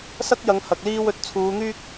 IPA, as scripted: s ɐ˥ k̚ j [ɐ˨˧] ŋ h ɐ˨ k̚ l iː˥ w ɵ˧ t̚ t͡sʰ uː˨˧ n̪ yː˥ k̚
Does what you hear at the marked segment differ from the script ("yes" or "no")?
no